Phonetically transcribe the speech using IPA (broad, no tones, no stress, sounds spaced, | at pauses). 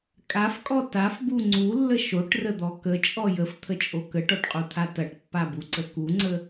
kʼ a f kʼ ɔ t a f b u ŋ͡ǀ u lː ə ʃ o ʈ r ə d̪ ɔ k ə t͡ʃʼ ɔ j ə f t̪ʰ ə t͡ʃʼ o k ə ʈ ɔ ʈ qʼ u t̪ʰ a t ɐ ʈ pː a b u ǀ ə k u ŋ͡ǀ ə